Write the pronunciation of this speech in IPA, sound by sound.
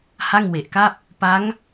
h a˥˩ ŋ w e˨˩ ʔ k a˥˩ p̚ | p a˦˥ ŋ

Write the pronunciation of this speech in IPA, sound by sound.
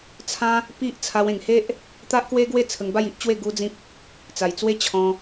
t͡sʰ ã˦ | p i˦ ʔ t͡sʰ a˧ w ẽ˨˩ ŋ h e˦ ʔ | t̪ a˦ ʔ k w e˦ ɡ w e˥˧ t͡sʰ ə˧ ŋ b a˥˧ j i˦ ʔ t͡ɕ w e˥˧ ɡ u˦ d͡z ĩ˦ p̚ | t͡s a˨˩ j t͡s w e˦ t͡ɕʰ ɔ̃˧

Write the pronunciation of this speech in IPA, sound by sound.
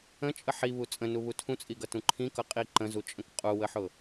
ə̃ t͡ʃʼ ə ħ i β u t͡sʼ ə̃ n u β u tʰ ũ t͡sʼ i ɡ ʌ t ũ ǃʰ ĩ k ʌ qʼ i ǃ ə̃ z u t͡ʃʼ ə̃ k qʼ u w ə ħ ʊ

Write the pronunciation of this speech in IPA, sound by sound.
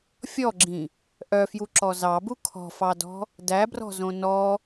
fʲ ɔ ɡ͡ǁ ĩ | ʔ œ f j u ǁ ɔ z ɑ b u kʰ ɔ̤ f ɑ d ɔ̤ | d æ b r ɔ̤ z õ n ɔ

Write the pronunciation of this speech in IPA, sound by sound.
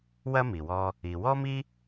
w ɐ˥ m i˩ w ɔ˧ | i˩ w ɔ˥ m i˥

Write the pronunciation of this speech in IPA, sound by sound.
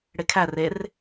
ɽ e kʰ æ r e r

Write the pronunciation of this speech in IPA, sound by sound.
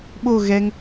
ɓ o ɣ ɛ ŋ

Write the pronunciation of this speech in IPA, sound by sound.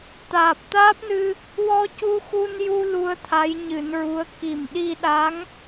t̪ aː˨˩ p̚ t̪ aː˦˥ p̚ n ɨ˧ | w ɔ˧ c u˧ x u˧ n j u˧ l u˧ ə̯ t̪ʰ a˧˥ j ɲ ɨ˨˩˦ n ɹ u˧˥ ə̯ k i˨˩ m ɗ i˧ ɗ a˧˥ ŋ

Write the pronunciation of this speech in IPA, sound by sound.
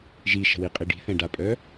ʒ i ʃ ə̤ w i qʼ i ɖ i̤ θ ɛ̃ ɖ a pʼ œ

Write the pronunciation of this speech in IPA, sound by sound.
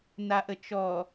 n a ʔ ə t͡ʃ ɔ

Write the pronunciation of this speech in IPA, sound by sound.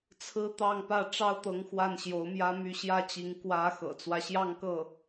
t͡sʰ ɹ̩˥ t̪ ɑ˥˧ ŋ p ä˥˩ ʈ͡ʂ ɑ˥ ʊ̯ t̪ ɤ˧˥ ŋ x w a˥˩ n ɕ j o˧˥ ʊ̯ m j ä˥ m y˥˧ ɕ j ä˥˩ t͡ɕ i˧˥ ŋ k w ä˧˥ x ɤ̰˨˩ t͡s w ä˦ ɕ j ɑ˥˧ ŋ k ɤ˥˩

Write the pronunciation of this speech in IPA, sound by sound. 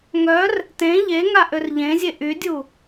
ŋ œ r | t ẽ ʎ e ŋ a ʔ ø r ʎ ẽ zʲ e ʔ y dʲ u

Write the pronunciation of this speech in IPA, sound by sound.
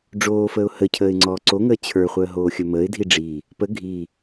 ɖ͡ʐ oː f əː ʊ̯ h ə cʰ əː ɪ̯ ŋ͡ǀ ɔː ǀ o ŋ əː t͡ɕʰ ə˞ χʷ əː ɦ oː xʲ ɵ m əː ɪ̯ dʱ i ɖ͡ʐ iː | p ə ɡʱ iː

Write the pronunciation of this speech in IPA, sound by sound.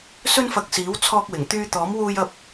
s ɵ˧ n f ɐ˨ k̚ s iː˨˥ w t͡sʰ ɔː˧ k̚ w ɪ˨˩ ŋ t̪ yː˧ t̪ ɔː˨˥ m w uː˧ j ɐ˧ p̚

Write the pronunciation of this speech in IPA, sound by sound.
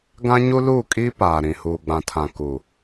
ɡ ã˦ ɲ u˦ l uː˦˨ kʼ iː˦ p aː˨ ɾ ĩ˨ h uː˨ ɡ͡b ã˨ tʰ ã˨ k u˨

